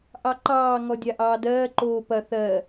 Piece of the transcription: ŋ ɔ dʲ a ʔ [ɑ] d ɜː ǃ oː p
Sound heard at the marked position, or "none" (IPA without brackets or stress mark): ɑː